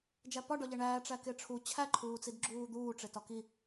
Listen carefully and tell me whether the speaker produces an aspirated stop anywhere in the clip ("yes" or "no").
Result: yes